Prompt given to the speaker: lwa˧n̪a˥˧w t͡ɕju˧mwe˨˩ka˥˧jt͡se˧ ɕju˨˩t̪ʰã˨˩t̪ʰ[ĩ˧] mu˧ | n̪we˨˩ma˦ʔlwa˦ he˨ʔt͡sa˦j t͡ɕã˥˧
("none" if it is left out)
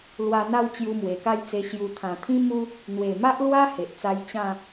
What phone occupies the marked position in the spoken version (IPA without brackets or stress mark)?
ĩ˦